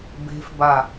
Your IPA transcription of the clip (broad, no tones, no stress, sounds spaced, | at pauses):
b e̤ f b a